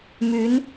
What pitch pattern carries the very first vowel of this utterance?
rising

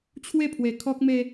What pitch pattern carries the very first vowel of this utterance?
falling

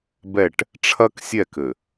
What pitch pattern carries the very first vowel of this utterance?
falling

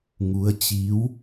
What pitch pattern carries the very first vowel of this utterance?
rising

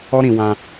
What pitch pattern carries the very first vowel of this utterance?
high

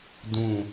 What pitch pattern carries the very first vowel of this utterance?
falling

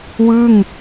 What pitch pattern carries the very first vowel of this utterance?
falling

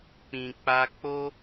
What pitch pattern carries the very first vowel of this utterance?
low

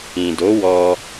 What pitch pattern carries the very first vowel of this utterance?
low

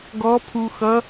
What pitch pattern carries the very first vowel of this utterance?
rising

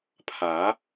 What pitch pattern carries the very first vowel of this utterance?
rising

